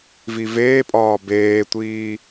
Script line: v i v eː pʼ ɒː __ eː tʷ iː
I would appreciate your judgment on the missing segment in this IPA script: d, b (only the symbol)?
b